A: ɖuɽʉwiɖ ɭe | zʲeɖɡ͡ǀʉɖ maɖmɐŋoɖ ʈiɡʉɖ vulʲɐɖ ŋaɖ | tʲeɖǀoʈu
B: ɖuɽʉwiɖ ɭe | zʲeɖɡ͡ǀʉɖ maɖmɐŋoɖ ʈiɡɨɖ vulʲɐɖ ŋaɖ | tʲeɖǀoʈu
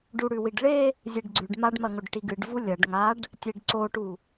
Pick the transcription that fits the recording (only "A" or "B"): B